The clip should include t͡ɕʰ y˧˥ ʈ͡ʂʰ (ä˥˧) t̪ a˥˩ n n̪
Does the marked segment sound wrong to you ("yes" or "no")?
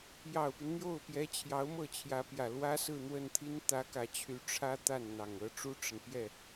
yes